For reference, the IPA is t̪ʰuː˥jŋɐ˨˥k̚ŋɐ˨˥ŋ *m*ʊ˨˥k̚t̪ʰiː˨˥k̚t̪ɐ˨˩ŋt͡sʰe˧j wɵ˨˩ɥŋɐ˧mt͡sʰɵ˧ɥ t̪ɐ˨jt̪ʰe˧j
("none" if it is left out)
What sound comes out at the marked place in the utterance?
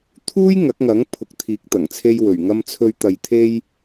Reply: pʰ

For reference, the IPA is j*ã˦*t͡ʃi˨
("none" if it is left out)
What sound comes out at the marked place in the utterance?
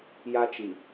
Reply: a˦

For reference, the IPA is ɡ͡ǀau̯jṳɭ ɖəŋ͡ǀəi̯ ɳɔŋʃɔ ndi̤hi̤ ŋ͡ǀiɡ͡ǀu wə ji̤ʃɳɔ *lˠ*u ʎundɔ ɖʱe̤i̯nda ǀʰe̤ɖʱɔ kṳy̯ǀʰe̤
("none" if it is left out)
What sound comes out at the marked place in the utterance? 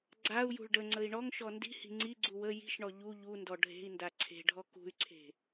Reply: ʎ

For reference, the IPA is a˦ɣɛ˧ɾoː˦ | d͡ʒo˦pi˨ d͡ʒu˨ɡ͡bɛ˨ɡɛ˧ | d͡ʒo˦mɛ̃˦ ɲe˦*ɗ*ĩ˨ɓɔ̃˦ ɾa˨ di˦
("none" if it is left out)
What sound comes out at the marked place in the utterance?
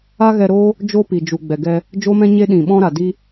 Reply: ɗ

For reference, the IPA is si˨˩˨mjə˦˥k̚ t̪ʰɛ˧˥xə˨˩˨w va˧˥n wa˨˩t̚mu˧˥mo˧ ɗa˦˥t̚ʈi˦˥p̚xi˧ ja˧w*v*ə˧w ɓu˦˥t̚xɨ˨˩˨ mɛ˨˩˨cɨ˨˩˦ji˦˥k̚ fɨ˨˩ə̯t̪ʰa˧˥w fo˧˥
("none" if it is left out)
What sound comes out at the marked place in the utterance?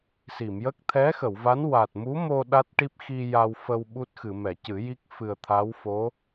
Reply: f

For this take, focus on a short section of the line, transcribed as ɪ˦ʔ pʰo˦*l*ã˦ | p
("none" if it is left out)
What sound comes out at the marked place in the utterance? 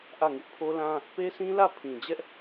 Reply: l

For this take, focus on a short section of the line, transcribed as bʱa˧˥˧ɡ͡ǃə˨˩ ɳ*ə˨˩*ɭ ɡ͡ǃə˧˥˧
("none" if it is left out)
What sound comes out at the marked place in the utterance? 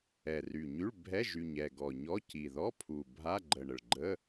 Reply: ə˨˩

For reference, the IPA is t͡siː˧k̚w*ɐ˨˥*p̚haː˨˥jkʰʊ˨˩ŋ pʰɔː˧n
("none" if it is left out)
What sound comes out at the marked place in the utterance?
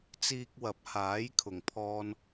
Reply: ɐ˨˥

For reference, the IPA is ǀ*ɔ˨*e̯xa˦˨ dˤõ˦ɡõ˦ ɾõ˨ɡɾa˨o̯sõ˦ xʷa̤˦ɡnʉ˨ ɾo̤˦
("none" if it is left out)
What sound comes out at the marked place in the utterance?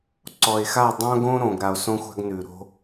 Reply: ɔ˨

